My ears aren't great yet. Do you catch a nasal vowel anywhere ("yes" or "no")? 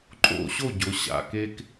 no